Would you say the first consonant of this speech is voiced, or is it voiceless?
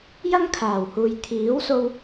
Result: voiced